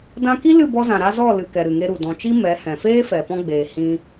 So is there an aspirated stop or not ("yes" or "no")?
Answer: no